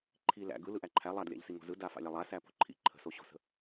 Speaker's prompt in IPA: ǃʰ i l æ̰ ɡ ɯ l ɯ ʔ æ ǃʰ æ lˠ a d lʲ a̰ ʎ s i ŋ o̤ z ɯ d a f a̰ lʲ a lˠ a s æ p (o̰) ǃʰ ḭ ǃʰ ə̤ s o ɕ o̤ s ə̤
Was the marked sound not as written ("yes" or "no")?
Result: yes